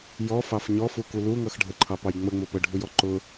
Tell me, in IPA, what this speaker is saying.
j ɔ f ɑ f ɲ ɔ f u k u l u ŋ ʌ x ɖʱ ə ǃʰ ɑ p ɑ j ŋ͡m ə ŋ͡m ʊ p ə ɖʱ u j ɔ ǃ ʊ

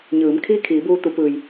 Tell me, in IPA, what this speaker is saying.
ɲ ɯː˩˧ m kʰ iː˥˨ kʰ iː˩˧ b uː˧ t̪ u˩˧ p ɯː˩ j

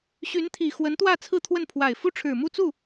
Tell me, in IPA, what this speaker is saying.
ɕ y˧˥ n t̪ʰ i˨˩ x w ə˧˥ n t̪ w ä˥˧ t͡sʰ ɹ̩˥˧ t̪ʰ w ə˥˩ n pʰ w a˨˩ ɪ̯ f u˥ ʈ͡ʂʰ ɻ̩˨˩ m u˥˧ t͡s u˥˩

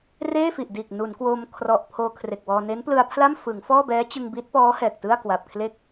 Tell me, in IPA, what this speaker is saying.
r eː˥˩ f i˨˩ ʔ d iː˨˩ k̚ n u˩˦ n k w o˧ m kʰ r ɔ˨˩ ʔ pʰ oː˧ kʰ r e˨˩ k̚ w ɔː˧ n e˦˥ n p l ɯ˧ a̯ pʰ l a˥˩ m f ɯ˩˦ ŋ f ɔː˥˩ b ɛː˦˥ t͡ɕ ɯ˧ ŋ b i˦˥ t̚ p ɔː˦˥ h ɛː˨˩ k̚ t ɯ˥˩ a̯ k w a˨˩ p̚ kʰ l e˦˥ k̚

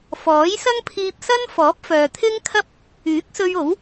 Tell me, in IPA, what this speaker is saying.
f ɔː˨˥ j s ɐ˥ ŋ pʰ iː˧ p̚ s ɐ˥ n f ɔː˨˥ p̚ f œː˨ t̪ʰ ɪ˥ ŋ kʰ ɐ˥ p̚ | yː˨˥ k̚ s ɵ˧ ɥ o˨˥ w

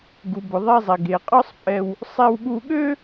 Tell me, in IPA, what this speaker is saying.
ɡ u˩ b ʊ˩ ðˤ ɛ˧ zˤ e˩ ɡ e˩ qʼ ɒ˥ sˤ pʼ ɛ˧ w | sˤ e˧ w ɠ u˧ ɠ ø˥

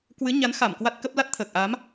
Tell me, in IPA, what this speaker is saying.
k w ɨ˨˦ ɲ a˨˦ n x a˧˩ m k w a˦˥ t̚ k ə˦˥ p̚ l a˦˥ t̚ t̪ʰ əː˨˩ k̚ ʔ a˨˦ m

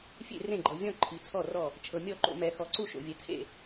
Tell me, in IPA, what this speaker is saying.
fʲ ḛ˦˨ r ẽ˦˨ ɡ͡ǃ ɤ˨ vʲ ɔ̃˦˨ ǃʰ i˨ t͡sʰ ɔ˦˨ r ɔ˦˨ | t͡ʃʰ ɤ˨ mʲ ɔ˦˨ ǃ o̰˨ m ɛ˨ x ɔ˨ ǀ u˦˨ ʃ o̰˨ vʲ ɛ˨ t͡sʰ ḛ˦˨

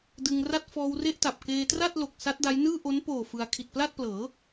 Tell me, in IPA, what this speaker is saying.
d ɯ˧ ŋ r a˥˩ t̚ f ɔː˧ w r e˥˩ ʔ t a˨˩ p̚ k eː˧ t r a˥˩ t̚ l o˨˩ k̚ s a˦˥ t̚ d a˦˥ j n ɯː˥˩ ʔ o˦˥ n p oː˨˩ f ɯ˧ a̯ kʰ i˨˩ t̚ p l a˥˩ t̚ p l ɤː˩˦

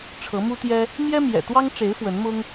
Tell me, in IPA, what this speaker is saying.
ʈ͡ʂʰ ɤ˨˦ m u˦ t̪ j ɛ˦ | m j ɛ˦ m j ɛ̰˨˩ t̪ w ɑ˦ ŋ ʈ͡ʂ e˨˦ ɪ̯ f w ə˨˦ n m ʊ˦ ŋ

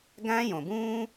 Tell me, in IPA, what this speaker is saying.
ɡ æ̃ː˥ j õ˩ b ũː˥

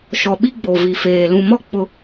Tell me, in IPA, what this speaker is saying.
ʃ ɔ˨ ɓ i˦ ɡ͡b o˨ v i˨ f eː˨ l ũ˨ m ɔ˦ k͡p ʊ˦

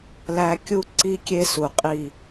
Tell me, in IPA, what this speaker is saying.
l æ˧ kʲ u˥˧ ǀ i˧ kʲ e˧ s u˧˩ qʼ i˧˩

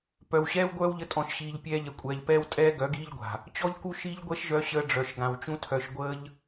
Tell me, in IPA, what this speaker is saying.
p œ˨ w ɕ ɛː˦ w ɡʷ œː˦ w ʎ ə˧ tʼ ɔ̃˨ ʃ ɕ iː˨ ʎ pʲ ɛː˧ ʎ ɛ˨ kʷʼ ɛː˨ ʎ p ɛː˦ w tʼ ɛː˦ ɡ œ˨˦ ɡ iː˦ ʎ ɡʷ a̤˨ | t͡ɕ ɔ˦ ʎ k u˦ ʃ i˦ ʎ ɡʷ ɛ˦ ʃ ʒ œ˧ ɕ əː˧ ɖ͡ʐ œ˨ ʃ ɡ ã˨ w t͡ɕ ũ˦ tʰ œ˧ ʃ ɡʷ əː˦ ʎ

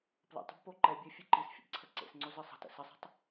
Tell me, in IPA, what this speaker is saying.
p l ə̰ tˤ ə̤ b p o ǃ ɛ bʲ e fʲ e ǃ i s fʲ ə̰ b ǀʰ ə ǀ ḛ s ŋ͡ǀ o z ɨ sˤ ə̤ t ə̰ s ɪ sˤ i̤ tˤ

